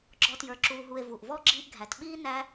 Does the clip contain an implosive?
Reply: yes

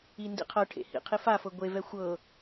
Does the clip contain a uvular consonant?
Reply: yes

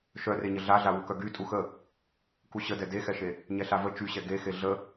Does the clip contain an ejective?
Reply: yes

